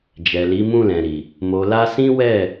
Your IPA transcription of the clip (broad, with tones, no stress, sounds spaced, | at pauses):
d͡ʒ ɛ˨ l i˨˦ m ũ˦˨ l ɛ̃˨ ɾ i˨ | m o˨ l a˧ s ĩ˦ w ɛ˦˨